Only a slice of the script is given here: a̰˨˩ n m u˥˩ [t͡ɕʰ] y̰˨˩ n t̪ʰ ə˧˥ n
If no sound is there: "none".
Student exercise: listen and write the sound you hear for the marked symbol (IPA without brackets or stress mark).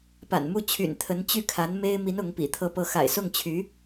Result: t͡ɕʰ